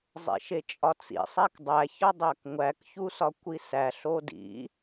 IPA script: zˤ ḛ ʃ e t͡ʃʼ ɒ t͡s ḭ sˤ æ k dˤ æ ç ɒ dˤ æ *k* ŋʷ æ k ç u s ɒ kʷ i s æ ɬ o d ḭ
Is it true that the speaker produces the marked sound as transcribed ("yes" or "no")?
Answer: yes